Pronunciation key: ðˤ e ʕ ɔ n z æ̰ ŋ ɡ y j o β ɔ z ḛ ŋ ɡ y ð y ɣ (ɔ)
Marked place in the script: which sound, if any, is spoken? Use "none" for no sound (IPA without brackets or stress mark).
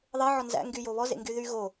o